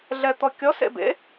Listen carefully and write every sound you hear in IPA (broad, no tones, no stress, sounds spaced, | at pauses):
ɮ ɛ t̪ ɔ kʲ ɔ s ḛ b ḛ